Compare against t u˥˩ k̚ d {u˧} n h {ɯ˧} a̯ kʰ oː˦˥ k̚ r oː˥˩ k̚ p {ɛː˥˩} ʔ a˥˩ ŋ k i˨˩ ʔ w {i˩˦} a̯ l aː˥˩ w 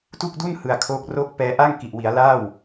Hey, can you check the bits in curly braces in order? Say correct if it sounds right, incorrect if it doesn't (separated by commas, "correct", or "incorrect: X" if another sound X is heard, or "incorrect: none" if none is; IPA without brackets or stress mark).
incorrect: u˥˩, incorrect: ɯ˨˩, incorrect: ɛː˧, correct